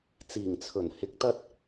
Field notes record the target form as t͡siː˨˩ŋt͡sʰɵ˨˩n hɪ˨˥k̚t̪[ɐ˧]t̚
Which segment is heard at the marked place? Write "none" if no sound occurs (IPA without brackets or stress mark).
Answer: ɐ˧